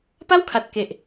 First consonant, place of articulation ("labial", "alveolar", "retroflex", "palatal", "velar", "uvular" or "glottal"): labial